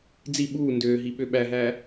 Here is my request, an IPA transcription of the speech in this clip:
d͡z i ɓ uː n d øː ɦ i ɓ ø ɓ æ ɦ æː

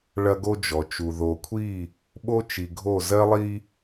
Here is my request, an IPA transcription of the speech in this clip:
ɭ ɐ˦ ɡ o˦ d͡ʒ ɔ˨ t͡ʃ u˨ ð o˨ kʷʰ i˦˨ | ɓ o˦ t͡ʃ i˨ ɡʱ o˦˨ z ɜ˦ lˠ i˦

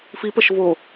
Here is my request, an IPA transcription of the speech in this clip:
f i p ə ʃ v o

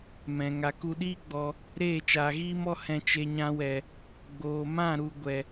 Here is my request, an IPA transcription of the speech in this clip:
m ɛ̃˨ ŋ a˨ k u˧ ɗ iː˦ ɡ͡b ɔ˧ | ɾ eː˦˨ t͡ʃ aː˨ ɣ iː˦ m ɔ˦ h ɛ̃˧ t͡ʃ e˧ ɲ ã˧ w ɛ˨ | ɡ͡b oː˨ m ã˦˨ ɾ u˨ ɡʷ ɛ˨

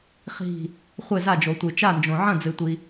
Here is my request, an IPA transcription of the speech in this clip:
χ i̤˥˩ | χʷ e˥˩ z a˥˩ d͡ʒ o˩ tʷ ɨ˩ t͡ʃ a˥˩ n d͡ʒ õ˩ ʕ ɐ̃˥˩ d͡z ɨ˩ tʷ i˩

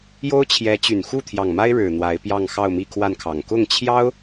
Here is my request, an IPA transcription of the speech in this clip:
j o˥ ʊ̯ t͡ɕʰ j ɛ˧˥ t͡ɕ y˨˩ n x u˥˩ t̪ʰ j ɑ˨˩ ŋ m a˥ ɪ̯ ɻ ɻ̩˨˩ n̪ w a˧˥ ɪ̯ p j ɑ˥˧ ŋ x ɑ˥˧ ʊ̯ m i˥˧ kʰ w a˥˩ n kʰ ɑ˨˩ ŋ k ʊ˥˩ ŋ t͡ɕʰ j ɑ˥ ʊ̯

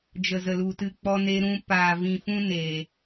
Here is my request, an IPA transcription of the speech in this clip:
d͡ʒ ə˨ z ə˨ l u˨ t ɨ˧ k͡p ɔ˧ n e˧ ɾ ũ˧ p aː˨ v ĩ˨ f ũ˦ n e˨

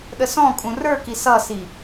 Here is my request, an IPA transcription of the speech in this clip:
ɗ ə s ɔ̃ kʼ ũ r ə˞ k i s ʌ s i

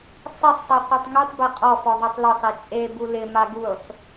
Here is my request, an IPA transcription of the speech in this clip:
sˤ ɪ sˤ tˤ e qʷ e tˤ ŋ u tˤ b e qʼ ɔ f ɔ ðˤ e tˤ l ʊ sˤ e t͡ʃʼ e b u l ɪ m a ɡ u sˤ

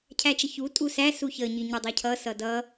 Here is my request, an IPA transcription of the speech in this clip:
cʰ æ t͡ʃ ə ç u tʼ u s æ s u ç ə ɲ i ɲ ə dˤ ʌ cʰ ʌ s ʌ d ʌ

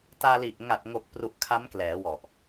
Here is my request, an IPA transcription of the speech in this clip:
t aː˧ l i˨˩ ʔ ŋ a˨˩ t̚ ŋ o˨˩ k̚ p r u˨˩ ʔ kʰ a˦˥ m k l ɛː˩˦ w ɔ˨˩ ʔ

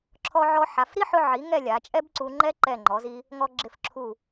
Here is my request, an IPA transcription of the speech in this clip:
ǁʰ ɔ˧ ʕ ɔ˧ ħ a˩˧ f ɾ i˥ ħ ʊ˧ ʕ i˩˧ ŋ ɛ˥˧ lʲ a˩˧ t͡ʃʼ ɛ˥ b ǀ u˧ ŋ͡ǃ ɛ˥ ǃ ɛ˧˩ ŋ͡ǃ ɔ˩˧ z i˧ | ŋ ɔ˧ ɡ͡ǁ ɪ˧˩ f ǁʰ u˧˩

